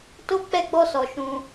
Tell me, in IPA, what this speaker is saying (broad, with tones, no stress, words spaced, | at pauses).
to˦ k͡pɛ˦ɡ͡bɔ˦sɔ˧ ʃũ˧